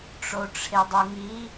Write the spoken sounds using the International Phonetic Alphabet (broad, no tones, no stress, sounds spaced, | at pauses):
ʈ͡ʂ o ʈ͡ʂʰ e dˤ u ŋ i